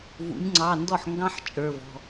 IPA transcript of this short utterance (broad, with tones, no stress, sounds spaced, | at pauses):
v ṵ˩˧ nʲ ŋ͡ǀ ɑ˩˧˩ n d ɔ˥˩ ħ ŋ ɡ ɑ̃˥ ħ t͡ʃʼ ə˞˩˧˩ v ɔ̤˩˧˩